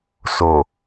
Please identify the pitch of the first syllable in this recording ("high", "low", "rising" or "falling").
low